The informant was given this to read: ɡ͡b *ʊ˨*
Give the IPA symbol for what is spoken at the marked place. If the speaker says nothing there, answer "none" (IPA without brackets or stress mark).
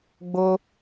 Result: ʊ˦